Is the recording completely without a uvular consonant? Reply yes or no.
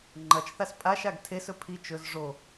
yes